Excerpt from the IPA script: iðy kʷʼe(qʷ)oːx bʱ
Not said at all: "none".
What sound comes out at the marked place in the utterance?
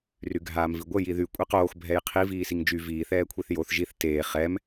q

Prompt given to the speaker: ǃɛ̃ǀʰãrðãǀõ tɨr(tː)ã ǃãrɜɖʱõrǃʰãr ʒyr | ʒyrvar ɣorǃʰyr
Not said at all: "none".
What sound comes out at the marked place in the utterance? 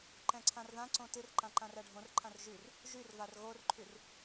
ǃ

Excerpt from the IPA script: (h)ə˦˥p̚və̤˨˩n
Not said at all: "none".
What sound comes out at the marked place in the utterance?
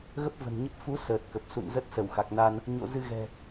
ɣ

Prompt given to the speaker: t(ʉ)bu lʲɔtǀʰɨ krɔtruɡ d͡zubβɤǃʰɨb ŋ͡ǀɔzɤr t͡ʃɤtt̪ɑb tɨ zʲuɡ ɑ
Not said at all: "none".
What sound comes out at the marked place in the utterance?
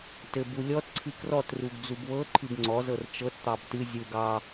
ɘ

